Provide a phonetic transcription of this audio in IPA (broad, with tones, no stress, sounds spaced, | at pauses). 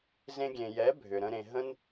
z ẽ˧ ɡʲ ẽ˨ j ɛ˨˦ bʱ ʏ˨ ɾ ə̃˧ ɾ ẽ˨ ɦ ə̃˦ n